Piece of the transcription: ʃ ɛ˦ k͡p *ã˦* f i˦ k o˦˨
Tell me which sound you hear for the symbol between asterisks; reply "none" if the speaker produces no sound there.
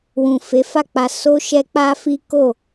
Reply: a˦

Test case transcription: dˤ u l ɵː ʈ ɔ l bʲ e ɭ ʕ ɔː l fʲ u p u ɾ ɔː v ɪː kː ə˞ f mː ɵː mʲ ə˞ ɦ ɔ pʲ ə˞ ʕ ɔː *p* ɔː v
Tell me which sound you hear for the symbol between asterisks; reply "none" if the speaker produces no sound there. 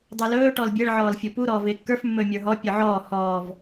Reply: h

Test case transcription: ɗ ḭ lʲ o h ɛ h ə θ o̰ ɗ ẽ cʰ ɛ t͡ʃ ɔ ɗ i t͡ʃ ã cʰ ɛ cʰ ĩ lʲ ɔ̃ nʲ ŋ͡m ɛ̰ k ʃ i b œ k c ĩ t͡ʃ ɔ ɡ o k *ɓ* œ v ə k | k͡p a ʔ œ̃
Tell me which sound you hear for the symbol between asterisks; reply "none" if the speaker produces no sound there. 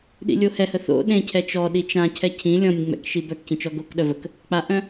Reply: ɗ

